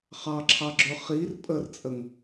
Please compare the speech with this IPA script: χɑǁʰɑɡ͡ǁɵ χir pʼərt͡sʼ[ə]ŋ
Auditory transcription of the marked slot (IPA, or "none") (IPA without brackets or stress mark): ə